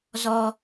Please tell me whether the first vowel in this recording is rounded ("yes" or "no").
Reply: yes